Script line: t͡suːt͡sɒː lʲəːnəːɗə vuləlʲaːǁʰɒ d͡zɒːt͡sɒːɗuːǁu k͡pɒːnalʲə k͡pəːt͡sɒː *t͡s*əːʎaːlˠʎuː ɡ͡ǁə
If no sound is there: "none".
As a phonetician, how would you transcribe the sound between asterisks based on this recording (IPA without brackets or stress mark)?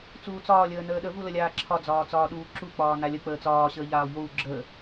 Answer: ɕ